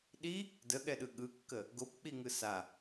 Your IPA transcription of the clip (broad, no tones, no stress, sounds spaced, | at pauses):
ɗ i | d ə ɠ ɛ ɗ ɯ ɠ ɯ kː ə | ɡ o p k͡p i ŋ ɯ s a